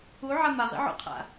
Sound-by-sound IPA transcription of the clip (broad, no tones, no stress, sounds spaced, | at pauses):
u ʕ a m a ʁ ḭ ʕ o̰ qʰ a̰